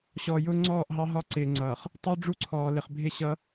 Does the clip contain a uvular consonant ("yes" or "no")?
yes